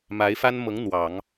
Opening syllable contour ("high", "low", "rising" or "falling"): rising